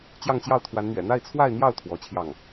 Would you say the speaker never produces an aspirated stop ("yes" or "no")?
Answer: no